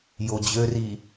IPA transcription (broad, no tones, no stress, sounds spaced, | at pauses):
j o d͡ʑ ø r i